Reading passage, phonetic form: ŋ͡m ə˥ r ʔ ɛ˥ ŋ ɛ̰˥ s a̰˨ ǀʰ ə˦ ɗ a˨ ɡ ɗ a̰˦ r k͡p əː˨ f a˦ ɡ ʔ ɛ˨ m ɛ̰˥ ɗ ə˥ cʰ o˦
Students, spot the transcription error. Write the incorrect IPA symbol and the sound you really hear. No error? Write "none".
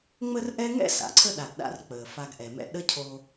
none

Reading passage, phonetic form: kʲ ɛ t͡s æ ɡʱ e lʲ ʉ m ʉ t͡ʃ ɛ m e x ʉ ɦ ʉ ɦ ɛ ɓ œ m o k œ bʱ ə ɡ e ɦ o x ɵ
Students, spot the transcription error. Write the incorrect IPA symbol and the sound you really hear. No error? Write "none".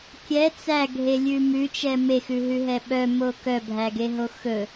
ə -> æ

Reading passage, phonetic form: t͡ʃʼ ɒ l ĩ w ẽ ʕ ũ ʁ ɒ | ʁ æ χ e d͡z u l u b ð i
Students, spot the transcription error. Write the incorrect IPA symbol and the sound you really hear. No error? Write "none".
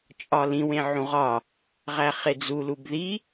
none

